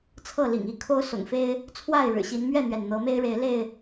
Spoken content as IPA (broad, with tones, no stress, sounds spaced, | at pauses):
t͡sʰ ɤ˥˨ l ḭ˨˩ ŋ i˥˨ kʰ o˦ ʊ̯ s ʊ̰˨˩ ŋ f e˦ ɪ̯ | t͡sʰ w a˥˨ ɪ̯ ɻ ɻ̩˨˩ ɕ i˨˦ n m ɥ ɛ˥˨ n̪ ɥ ɛ˩ n n̪ ɤ˨˦ m e˦ ɪ̯ ɻ e˨˦ ɪ̯ l e˥˨ ɪ̯